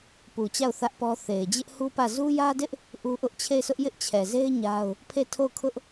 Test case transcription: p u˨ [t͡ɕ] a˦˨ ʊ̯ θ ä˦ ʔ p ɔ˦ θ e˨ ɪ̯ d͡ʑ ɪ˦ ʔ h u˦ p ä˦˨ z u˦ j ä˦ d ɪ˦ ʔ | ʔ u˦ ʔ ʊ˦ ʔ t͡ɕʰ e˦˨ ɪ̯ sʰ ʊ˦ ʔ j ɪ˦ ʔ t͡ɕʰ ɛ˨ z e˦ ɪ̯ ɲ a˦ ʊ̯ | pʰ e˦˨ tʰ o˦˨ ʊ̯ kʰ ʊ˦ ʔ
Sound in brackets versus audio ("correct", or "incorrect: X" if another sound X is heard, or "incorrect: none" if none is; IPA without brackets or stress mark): correct